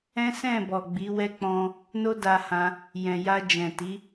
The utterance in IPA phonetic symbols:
ɛ̃˦ s ɛ̃˦˨ b ɔ˨ ɡ͡b i˨˦ w ɛ˦ k͡p ɔ̃˧ | n o˦ d a˧ h ã˧ | j ɛ̃˨ j a˧ d͡ʒ ɛ̃˨ t i˨˦

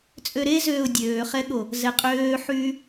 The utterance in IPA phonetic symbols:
t͡sʼ ø ɾ e z øː ʊ̯ dʲ øː χ ɛ ɠ o | z ɛ qʼ øː ħ yː

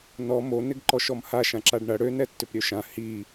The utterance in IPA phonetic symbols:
n ɔ m o n ɪ ɡ ǃ ɔ ʃ ɔ m h a ʃ ã ǁ a ɖ ɳ ɐ ɽ ø n ɛ tː ʏ p ɾʲ ø ʃ ã h i

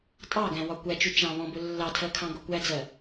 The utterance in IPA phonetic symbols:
tʼ ɑ ɡ æ̃ w ɒ kʷ æ t͡ʃ u t͡ʃ ɑ̃ β ɔ̃ b ʊ lː ɑ tʰ ɜ kʰ ɑ̃ ɡ ʊ kʷ æ d͡z ɜ

